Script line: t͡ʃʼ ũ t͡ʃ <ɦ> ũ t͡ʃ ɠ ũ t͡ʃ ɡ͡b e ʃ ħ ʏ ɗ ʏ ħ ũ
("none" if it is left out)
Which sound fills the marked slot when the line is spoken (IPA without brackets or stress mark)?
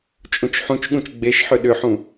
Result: ħ